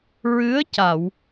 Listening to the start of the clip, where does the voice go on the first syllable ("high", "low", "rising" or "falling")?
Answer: rising